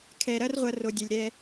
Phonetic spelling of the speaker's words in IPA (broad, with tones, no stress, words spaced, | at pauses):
kʰɛ˨ɾɐ˦rʁʷɐ˧ ro˧dʲɛ˧lʲɾɛ˦